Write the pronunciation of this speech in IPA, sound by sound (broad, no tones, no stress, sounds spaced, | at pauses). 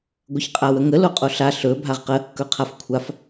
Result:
ɡʷ ə ç qʼ a w ə ŋ ə l o qʼ o ɬ a ɬ ɵ bʱ a ʁ q ə | k ɵ qʰ a f kʷʰ a f